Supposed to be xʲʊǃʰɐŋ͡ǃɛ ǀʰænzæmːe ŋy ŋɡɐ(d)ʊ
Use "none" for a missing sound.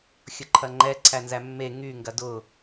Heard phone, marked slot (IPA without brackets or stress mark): d